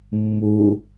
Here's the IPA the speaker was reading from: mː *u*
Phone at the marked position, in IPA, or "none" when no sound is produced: u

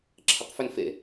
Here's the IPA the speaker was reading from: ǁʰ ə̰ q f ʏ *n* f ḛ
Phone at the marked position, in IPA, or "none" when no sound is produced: n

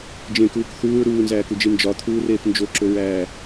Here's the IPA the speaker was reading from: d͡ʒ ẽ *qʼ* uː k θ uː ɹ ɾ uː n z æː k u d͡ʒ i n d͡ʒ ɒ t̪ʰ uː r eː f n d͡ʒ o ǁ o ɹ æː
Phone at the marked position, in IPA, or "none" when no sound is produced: k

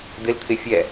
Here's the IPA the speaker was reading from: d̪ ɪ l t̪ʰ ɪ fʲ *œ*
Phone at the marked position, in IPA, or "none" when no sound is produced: ɛ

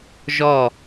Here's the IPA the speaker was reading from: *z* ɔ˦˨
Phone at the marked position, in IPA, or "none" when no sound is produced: ʒ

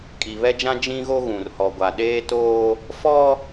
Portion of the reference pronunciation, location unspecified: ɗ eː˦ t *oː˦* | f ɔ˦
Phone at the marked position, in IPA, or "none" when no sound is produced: oː˦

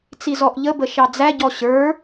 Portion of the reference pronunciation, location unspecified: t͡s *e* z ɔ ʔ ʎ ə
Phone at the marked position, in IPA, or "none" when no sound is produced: i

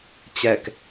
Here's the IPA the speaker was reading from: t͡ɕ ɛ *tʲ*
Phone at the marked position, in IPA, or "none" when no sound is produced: k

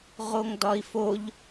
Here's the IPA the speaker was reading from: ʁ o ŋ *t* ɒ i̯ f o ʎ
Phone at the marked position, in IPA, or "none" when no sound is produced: d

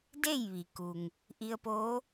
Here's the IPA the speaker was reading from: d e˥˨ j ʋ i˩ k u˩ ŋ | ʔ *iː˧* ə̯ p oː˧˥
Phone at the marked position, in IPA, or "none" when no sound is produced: i˧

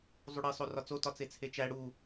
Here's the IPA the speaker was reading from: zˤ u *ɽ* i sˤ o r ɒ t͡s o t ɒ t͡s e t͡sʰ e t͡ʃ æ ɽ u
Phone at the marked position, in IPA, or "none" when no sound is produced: ɽ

